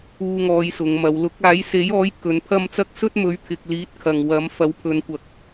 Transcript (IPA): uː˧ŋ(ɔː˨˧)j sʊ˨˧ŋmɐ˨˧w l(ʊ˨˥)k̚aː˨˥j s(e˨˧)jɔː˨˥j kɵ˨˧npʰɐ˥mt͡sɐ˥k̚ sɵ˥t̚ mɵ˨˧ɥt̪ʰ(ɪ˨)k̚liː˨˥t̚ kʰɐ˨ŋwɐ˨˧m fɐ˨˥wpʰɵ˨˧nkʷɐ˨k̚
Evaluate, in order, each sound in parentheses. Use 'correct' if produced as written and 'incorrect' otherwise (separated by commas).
correct, correct, incorrect, correct